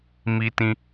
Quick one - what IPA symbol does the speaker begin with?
m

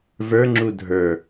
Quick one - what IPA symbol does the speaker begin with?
v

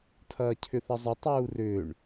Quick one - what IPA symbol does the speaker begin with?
tʰ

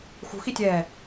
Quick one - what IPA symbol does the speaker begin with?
x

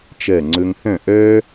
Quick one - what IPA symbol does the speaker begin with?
t͡ʃ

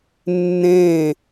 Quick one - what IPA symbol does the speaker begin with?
nː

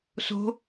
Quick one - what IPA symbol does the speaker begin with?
s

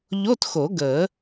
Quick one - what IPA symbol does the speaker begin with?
ʎ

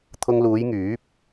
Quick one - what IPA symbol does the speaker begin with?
t̪ʰ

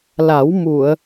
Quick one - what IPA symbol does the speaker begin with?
l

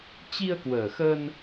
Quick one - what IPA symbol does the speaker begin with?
t͡ɕ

